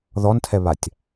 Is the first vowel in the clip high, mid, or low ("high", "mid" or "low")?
mid